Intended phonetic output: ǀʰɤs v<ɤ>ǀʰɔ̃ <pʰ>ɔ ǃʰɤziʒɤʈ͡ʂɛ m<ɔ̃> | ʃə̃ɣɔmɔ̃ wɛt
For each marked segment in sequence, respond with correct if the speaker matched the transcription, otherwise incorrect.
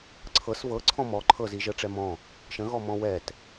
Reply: correct, incorrect: m, correct

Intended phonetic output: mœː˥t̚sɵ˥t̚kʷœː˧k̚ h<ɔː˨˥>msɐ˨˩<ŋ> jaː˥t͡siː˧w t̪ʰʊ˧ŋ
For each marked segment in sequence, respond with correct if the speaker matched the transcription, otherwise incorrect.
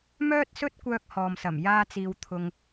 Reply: incorrect: ɔː˨, incorrect: m

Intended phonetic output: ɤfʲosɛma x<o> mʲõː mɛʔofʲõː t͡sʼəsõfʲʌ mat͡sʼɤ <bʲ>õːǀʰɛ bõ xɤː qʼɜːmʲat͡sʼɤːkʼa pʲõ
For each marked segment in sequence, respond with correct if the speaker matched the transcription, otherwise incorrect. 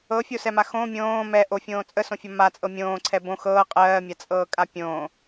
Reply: incorrect: õ, incorrect: mʲ

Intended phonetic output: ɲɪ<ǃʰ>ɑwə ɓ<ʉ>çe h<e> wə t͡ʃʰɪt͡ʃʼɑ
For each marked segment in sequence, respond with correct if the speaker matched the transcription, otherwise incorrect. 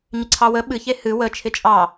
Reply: incorrect: ǀʰ, incorrect: ɨ, incorrect: ɨ

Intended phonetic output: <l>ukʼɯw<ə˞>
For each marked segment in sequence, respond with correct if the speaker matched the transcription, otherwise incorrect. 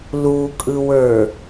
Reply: correct, correct

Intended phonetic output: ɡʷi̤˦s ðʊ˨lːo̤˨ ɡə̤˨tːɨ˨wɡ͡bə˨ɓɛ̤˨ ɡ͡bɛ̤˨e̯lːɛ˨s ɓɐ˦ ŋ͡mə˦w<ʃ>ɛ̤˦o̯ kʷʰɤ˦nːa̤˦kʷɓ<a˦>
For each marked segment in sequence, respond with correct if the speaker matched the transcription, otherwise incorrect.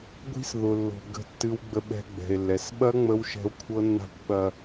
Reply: correct, incorrect: ɐ˦

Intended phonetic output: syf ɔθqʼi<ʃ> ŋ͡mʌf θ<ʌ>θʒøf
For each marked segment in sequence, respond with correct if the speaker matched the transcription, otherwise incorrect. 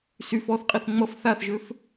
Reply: incorrect: θ, incorrect: a

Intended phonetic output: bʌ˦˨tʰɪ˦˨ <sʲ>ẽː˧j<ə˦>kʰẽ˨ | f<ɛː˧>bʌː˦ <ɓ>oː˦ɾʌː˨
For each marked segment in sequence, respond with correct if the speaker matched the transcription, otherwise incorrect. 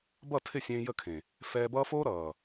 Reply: correct, incorrect: ə˦˨, correct, incorrect: f

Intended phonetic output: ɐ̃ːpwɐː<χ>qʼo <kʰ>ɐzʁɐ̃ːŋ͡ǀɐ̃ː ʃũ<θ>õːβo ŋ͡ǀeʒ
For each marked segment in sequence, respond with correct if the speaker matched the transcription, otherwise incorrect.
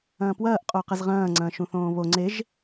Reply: incorrect: ʔ, incorrect: q, correct

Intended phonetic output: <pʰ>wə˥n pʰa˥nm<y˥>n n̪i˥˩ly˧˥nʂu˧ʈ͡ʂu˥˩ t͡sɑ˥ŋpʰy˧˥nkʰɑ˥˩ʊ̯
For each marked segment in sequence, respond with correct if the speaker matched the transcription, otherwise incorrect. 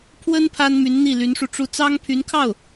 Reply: correct, incorrect: y˧˥

